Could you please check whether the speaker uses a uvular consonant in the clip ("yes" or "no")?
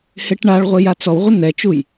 yes